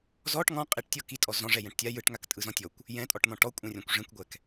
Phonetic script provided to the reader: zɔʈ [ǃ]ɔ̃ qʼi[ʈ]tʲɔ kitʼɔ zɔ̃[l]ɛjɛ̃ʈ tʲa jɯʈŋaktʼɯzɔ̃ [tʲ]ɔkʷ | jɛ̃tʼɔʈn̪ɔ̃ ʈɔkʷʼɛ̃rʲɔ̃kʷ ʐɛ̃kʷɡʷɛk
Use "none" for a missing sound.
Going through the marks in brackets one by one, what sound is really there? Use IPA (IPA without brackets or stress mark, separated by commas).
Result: ŋ, ʈ, ʐ, tʲ